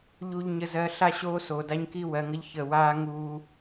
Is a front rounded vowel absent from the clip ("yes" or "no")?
yes